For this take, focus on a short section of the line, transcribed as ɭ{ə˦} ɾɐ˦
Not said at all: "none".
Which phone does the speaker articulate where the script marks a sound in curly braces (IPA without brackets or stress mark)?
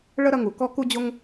ə˦